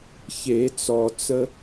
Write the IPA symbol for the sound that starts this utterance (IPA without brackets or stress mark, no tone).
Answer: ç